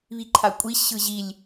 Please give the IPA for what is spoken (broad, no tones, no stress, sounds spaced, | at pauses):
β i ǃʰ a kʷʼ i ɕ ɯ ʑ i lʲ